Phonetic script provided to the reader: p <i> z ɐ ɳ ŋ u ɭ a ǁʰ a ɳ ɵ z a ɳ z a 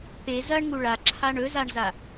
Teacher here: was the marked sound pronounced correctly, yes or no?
no